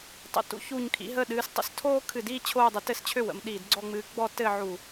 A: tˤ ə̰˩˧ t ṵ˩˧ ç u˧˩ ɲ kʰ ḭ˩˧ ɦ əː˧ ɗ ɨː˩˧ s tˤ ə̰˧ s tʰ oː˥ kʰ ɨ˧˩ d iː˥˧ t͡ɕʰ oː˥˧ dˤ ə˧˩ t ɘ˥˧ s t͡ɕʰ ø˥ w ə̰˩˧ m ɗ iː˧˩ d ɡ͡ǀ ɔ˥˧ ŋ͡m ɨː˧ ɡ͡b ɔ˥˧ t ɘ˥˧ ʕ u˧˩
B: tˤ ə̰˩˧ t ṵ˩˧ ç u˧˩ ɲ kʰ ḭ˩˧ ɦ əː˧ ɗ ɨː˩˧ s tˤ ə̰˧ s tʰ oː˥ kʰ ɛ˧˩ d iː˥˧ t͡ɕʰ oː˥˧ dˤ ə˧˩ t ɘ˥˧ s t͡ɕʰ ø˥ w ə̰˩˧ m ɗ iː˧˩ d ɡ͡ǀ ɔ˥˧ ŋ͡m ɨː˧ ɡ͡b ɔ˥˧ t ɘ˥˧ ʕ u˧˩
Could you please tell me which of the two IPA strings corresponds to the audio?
A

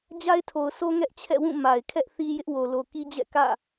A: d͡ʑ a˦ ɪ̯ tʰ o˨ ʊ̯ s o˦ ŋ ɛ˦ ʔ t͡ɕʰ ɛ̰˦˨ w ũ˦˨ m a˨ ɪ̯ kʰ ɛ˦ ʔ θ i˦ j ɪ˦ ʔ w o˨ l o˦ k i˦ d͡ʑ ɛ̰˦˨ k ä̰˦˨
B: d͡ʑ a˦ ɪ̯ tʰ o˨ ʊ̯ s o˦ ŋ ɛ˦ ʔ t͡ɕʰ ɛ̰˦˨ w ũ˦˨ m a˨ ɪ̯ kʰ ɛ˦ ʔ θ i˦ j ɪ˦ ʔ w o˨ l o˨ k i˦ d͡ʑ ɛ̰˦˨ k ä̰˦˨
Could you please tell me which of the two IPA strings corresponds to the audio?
B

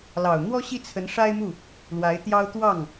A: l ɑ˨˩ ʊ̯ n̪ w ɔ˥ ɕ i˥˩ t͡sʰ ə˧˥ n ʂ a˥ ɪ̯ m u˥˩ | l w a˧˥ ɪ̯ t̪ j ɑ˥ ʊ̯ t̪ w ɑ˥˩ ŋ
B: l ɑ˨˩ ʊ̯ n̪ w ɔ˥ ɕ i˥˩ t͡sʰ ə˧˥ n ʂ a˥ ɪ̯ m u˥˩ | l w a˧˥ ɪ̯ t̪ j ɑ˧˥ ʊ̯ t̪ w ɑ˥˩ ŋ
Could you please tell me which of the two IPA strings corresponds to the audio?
A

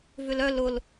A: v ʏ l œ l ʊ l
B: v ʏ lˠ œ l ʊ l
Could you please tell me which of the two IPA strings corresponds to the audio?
A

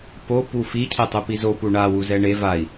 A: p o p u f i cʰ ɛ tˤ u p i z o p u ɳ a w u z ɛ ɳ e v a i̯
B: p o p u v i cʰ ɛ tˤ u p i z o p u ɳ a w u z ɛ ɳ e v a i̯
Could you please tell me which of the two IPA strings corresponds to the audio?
A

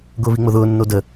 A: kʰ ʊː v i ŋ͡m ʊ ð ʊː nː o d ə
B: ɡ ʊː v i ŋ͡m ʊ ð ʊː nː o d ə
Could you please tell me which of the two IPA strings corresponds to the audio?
B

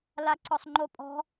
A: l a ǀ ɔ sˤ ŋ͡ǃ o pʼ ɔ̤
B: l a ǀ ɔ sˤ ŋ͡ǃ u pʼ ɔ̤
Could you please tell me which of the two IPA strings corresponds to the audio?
A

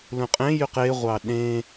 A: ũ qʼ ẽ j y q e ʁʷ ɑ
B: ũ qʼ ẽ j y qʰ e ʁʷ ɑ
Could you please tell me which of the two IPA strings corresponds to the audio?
A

